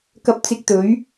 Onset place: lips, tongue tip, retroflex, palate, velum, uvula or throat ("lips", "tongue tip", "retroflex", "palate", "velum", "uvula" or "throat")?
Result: velum